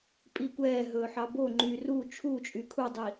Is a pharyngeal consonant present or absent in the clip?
present